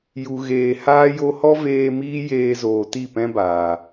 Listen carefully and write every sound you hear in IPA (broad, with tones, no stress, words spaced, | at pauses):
ju˨ɣeː˨haː˦ jo˧hɔ˦veː˧ miː˦jeː˧zoː˨ ti˦˨pɛ̃˦baː˨